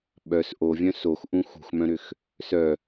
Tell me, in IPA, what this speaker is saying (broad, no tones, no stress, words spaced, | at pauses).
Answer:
ɓœs ʔovʲœ̃ soxʔũ xṳxmœ̃ɾʏx | sœ